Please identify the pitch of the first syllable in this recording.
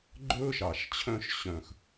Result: high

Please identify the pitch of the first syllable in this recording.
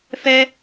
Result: high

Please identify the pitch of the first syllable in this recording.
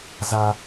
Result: high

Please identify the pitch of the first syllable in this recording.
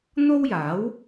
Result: high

